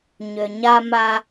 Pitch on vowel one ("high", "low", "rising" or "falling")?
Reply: low